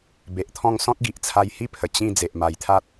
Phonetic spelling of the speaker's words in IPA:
b e˨ ʔ t̪ʰ ɔ̃˥˧ ŋ s ɔ̃˦ t̚ ɡ i˨ ʔ t͡sʰ a˧ j h i˦ pʰ ə˨˩ t͡ɕ ĩ˥˧ d͡z e˨ ʔ m a˨˩ j t̪ʰ a˦ t̚

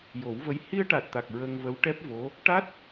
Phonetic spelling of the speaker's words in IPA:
j o˨˩˦ w v ə˧˥ j h i˧ ə̯ ʈ a˨˩ t̚ t̪ a˨˩ k̚ ɹ ə˧ ŋ v ə˧˥ w ʈ ɛ˦˥ p̚ v o˧˥ | ʈ a˦˥ t̚

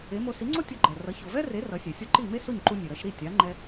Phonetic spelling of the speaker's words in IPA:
e˩˥ m o˧ s i˩˥ ŋ͡ǀ o˥ tʲ o˧ ɡ͡ǃ ɛ˩ r ʌ˩˥ ç o˩ v ɛ˥ r e˩˥ r ʌ˩˥ sʲ ɛ˩ sʲ o˥ ǃ i˥˩ m e˥ s o˥˩ ɲ ǃ u˧ nʲ e˩ ɾ ʌ˧ ʃ ɾ i˥˩ tʲ a˩˥ ŋ͡ǃ ɛ˥

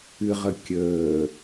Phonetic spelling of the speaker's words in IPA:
ɨ ʁ ə kʲ əː

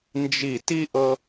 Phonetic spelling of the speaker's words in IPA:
n d͡ʒ i˧˩ t i˦ ʔ ɤ˦

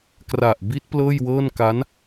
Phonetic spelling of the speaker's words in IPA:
k r a˨˩ ʔ b i˦˥ t̚ p l ɤː˥˩ j w ɤː˥˩ n k a˦˥ n

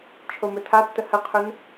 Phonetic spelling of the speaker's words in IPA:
t͡ʃʰ o m ɵ tʰ a tː ə h ə qʰ ɵ n

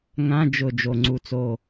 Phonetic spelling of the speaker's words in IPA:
ŋ ã˧˥˧ d͡ʒ ʊ˧˩ d͡ʒ o˧˩ ŋ͡ǀ u˧˩ t͡s o˧˩

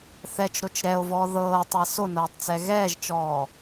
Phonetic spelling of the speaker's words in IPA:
θ ɛ t͡ʃ ɾ o t͡ʃ ɾ ɛ o̯ v ɔː ð ɤː tˤ a s o n ɤː tˤ t͡s ɛ ɣ ɛː ʒ t͡ʃ ɔː

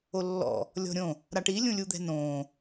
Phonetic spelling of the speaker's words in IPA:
o lː ɔ̰ | lʲ ɔ̤ ɾʲ õ | ɾ a ʈ i lʲ ũ lʲ u d̪ ɛ̤ n õː

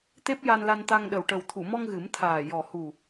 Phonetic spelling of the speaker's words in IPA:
t̪ e˦˥ p̚ j a˧ n l a˧ n t̪ a˧ ŋ ɗ ə˨˩ w ʈ ə˨˩ w t̪ʰ u˨˩˨ m ɔ˧ ŋ ɣ ɨ˨˩˦ m t̪ʰ aː˨˩ j ɔ˨˩ h u˨˩

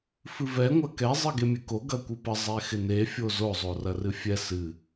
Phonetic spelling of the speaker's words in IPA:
f ɨ v ɛ ŋʷ ɐ k ɛ zˤ ɨ ɡ e mʲ ɨ k o ɡ ɐ kʷ ɨ p ə zˤ ɛ x ɪ n e fʲ o z o zˤ o r ɐ r ɨ fʲ ɛ s ɨ

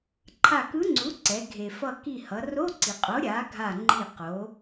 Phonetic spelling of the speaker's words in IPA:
ǃʰ a˧˩ k ɯ˧˥ ŋ͡ǀ u˩˥ ǀ ɛ˩˧ ɡʱ e˩ f ʌ˧˩ k i˧˩ h ʌ˩˧ r o˧˥˧ ǀ i˩ qʼ o˩˥ ɾʲ a˩˥ ɡʱ a˧˩ ŋ͡ǃ i˧˩ q o˩˥

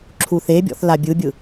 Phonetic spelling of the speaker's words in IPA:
ǁʰ u θ e bʲ ɔ̰ θ l a bʲ ɯ bʲ ɯ

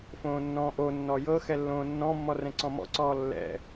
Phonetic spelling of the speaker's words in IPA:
f õː nː ɔ̃ː ʔ o nː ɔ j ɤ x ɛ lː õː nː ɔ̃ mː ɔ r ɛ̃ ǀ ɔ̃ m ɔ̰ ǀ ɔː lː ɛ̰

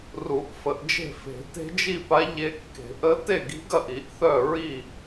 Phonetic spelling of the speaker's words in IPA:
r u˨˩˦ ʔ f ə˨˩˦ ʔ d͡ʒ e̤˥˩ f e̤˨˩˦ t e̤˧˥ d͡ʒ i˥˩ p a˧˥ ʎ e˧˥ kː e̤˨˩˦ ʔ ə˧˥ t e˥˩ ɡ i̤˧˥ ɡ ɐ˥˩ ʔ i˨˩˦ ʔ θ œ˥˩ ɹ i˥˩

